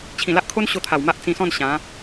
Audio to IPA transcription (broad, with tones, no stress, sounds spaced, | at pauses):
t͡ɕʰ ĩ˨˩ l a˦ ʔ kʰ o˦ n ɕ o˧ t̪ʰ a˨˩ w m a˦ ʔ t͡s ĩ˧ s ɔ̃˥˧ n ɕ ã˨˦